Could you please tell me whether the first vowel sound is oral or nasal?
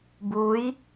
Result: oral